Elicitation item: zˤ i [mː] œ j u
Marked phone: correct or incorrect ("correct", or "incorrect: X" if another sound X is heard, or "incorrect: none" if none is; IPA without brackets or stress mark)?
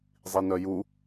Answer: incorrect: n